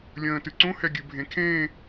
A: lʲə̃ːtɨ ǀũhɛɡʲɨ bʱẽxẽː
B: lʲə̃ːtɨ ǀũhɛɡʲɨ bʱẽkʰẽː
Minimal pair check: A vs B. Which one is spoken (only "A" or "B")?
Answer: B